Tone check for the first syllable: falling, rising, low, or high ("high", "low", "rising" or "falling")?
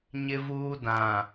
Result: high